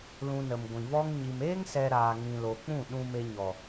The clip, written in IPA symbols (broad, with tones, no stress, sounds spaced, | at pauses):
l ũ˧ n ə˨ m ɡʷ ĩ˨ v ɔ˦ ŋ ɲ i˨ m eː˦ ŋ s ɛ˧ ɾ aː˨ ŋ ĩ˨ l o˨ k͡p ũ˦˨ ɗ ũ˧ m e˧ ɲ ɔ˨